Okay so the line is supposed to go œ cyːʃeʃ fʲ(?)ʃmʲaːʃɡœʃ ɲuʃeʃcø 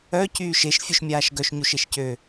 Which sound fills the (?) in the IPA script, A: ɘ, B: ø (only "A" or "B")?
B